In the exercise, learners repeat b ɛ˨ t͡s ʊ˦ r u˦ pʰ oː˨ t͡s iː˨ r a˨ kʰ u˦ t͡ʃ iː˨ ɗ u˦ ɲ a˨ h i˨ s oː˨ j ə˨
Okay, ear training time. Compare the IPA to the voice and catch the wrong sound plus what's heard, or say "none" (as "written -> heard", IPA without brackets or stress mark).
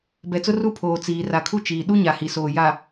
ə˨ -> a˨